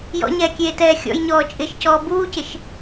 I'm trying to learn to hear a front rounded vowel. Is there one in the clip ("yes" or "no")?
no